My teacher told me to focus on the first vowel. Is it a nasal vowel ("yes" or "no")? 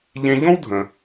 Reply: yes